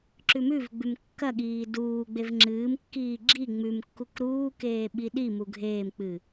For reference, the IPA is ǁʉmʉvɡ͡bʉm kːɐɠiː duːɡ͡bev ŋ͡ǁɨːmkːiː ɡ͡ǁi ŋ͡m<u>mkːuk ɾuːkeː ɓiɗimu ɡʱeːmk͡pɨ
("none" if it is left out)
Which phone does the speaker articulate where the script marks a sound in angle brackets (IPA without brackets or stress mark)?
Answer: ʉ